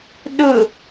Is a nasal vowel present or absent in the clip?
absent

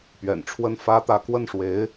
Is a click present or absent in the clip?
absent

